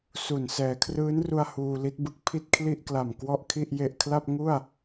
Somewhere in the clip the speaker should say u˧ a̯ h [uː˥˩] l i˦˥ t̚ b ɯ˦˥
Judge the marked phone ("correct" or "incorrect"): incorrect